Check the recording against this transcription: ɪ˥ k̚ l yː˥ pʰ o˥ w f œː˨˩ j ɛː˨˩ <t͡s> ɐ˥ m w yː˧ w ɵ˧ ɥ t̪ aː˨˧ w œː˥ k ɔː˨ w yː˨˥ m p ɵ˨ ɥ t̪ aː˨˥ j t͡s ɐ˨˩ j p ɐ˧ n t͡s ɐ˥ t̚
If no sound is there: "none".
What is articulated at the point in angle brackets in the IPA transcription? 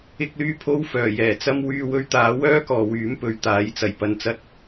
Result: t͡s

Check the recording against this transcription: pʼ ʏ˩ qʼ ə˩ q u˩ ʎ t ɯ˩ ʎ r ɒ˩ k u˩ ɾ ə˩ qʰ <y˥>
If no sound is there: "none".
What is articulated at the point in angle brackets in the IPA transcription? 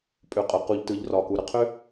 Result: ʏ˥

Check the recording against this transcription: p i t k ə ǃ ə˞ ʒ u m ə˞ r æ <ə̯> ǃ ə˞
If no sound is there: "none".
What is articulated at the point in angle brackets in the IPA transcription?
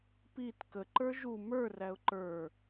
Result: ʊ̯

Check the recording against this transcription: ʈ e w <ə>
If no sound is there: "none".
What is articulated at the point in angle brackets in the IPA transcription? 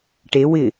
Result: ɪ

